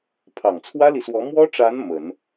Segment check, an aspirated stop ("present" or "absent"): present